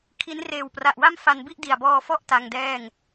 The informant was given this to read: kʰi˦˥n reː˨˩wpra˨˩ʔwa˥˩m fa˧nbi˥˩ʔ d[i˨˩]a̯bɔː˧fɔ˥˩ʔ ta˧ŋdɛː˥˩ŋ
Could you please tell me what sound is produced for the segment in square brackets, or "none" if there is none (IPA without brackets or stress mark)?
i˨˩